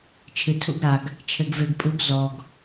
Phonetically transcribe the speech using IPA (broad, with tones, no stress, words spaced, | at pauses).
t͡ʃʰɨ˨tʰṵ˧ɡɾa˨ɡ | t͡ʃʰɘ˨ɡve˨ɡpʼu˨˦ɡ zɔ˨ɡ